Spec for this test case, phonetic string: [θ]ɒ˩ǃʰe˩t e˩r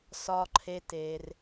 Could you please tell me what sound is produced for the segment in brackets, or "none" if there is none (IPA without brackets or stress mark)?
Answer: s